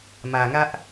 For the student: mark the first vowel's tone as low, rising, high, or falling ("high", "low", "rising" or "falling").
low